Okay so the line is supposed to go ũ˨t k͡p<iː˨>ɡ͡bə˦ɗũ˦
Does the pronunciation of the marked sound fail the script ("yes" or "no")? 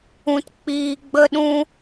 no